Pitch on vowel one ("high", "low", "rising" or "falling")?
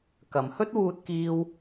low